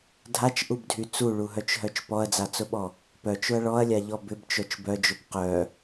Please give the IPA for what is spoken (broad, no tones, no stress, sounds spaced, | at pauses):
dʱ a t͡ʃ ʔ u b dʱ y t͡s u ɭ u ɦ œ t͡ʃ ɦ œ t͡ʃ p ɔ ɐ̯ d͡z a t͡s ʊ ɓ ɔ | p œ t͡ʃ ʊ ɐ̯ ɭ ɔ ɐ̯ lʲ a ʎ ɔ b ʏ b t͡ʃ œ t͡ʃ b œ d͡ʒ ʊ b q œ